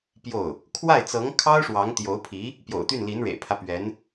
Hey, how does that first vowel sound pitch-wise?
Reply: falling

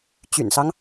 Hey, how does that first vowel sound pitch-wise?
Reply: low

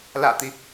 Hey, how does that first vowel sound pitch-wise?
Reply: low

